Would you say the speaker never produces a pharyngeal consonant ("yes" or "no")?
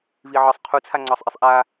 no